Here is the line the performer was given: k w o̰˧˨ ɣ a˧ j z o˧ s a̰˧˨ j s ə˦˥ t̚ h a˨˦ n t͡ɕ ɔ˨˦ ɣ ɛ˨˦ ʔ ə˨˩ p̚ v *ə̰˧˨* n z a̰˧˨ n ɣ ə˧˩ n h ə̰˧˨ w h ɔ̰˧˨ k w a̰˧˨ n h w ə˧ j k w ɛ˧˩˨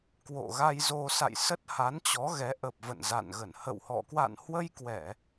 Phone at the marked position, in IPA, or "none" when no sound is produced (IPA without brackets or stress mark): ə̰˧˨